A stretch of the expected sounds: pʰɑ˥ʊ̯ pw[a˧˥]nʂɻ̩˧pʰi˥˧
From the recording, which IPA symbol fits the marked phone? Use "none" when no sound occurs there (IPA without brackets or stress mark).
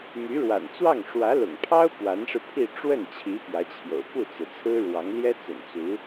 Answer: a˧˥